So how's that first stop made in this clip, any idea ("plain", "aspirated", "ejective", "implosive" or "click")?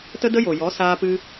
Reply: plain